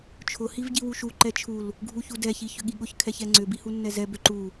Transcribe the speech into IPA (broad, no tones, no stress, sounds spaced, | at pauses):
t͡ʃʰ ʊ h i v ɟ i w u ʃ u ǃ ɛ t͡ʃʰ u l | ɡʱ u ç u d ɛ ç i ç ʏ ɠ i ɠ ʊ ç kʰ ɛ ç ɛ ŋ͡ǀ ʏ b i h u nː ɛ z ɛ b ʏ ǃ u